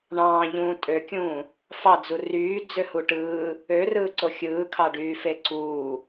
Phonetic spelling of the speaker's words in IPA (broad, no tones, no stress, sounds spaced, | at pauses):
ɳ ɑ̃ː ʎ ũː tʼ ø kʲ ũː | f ɑ d͡z u r yː d͡z ø h u ʈ ɯː | ø r ɯː ǀ o xʲ ɯː kʰ ɑ ɖ yː f e ǀ uː